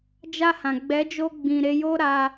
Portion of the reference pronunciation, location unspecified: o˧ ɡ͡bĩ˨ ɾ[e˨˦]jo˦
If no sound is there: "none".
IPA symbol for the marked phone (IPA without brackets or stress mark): e˨˦